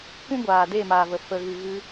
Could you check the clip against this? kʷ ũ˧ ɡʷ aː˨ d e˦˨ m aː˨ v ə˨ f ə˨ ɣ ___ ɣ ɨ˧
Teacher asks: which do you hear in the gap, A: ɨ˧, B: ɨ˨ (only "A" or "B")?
B